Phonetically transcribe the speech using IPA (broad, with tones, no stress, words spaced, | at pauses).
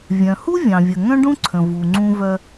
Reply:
vʲœ̃˩hu˥ vʲɑ̃˩vʲə˩ ŋœ̃˥ɖũ˥ǀʰə̃˩ vu˩ŋ͡ǀũ˧vœ˧